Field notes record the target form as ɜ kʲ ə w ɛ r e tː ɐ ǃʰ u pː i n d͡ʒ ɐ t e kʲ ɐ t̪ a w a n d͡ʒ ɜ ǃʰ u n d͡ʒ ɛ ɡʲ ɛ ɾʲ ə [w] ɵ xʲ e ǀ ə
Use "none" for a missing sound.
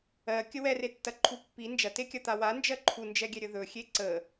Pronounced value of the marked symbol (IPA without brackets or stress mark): ð